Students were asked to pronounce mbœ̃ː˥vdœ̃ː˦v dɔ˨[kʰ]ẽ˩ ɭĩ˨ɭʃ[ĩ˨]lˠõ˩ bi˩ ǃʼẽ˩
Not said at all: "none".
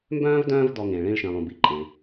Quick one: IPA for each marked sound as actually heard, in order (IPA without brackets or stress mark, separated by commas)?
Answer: ŋ, ĩ˩